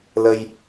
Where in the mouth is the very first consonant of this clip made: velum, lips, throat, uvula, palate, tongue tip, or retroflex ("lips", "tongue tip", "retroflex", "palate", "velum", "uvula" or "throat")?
tongue tip